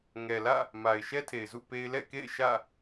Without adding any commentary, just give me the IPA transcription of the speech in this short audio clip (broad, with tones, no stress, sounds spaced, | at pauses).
ŋ ɛ˨ l ä̰˦˨ | m a˨ ɪ̯ ʃ ɛ˦ tʰ e˨ ɪ̯ z ṵ˦˨ p e˦ ɪ̯ l ɛ̰˦˨ k ḛ˦˨ ɪ̯ ʃ ä̰˦˨